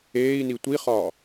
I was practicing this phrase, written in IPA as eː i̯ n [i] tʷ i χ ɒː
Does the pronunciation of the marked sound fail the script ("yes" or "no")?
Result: no